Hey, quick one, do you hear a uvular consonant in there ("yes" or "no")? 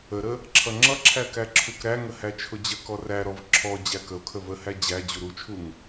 no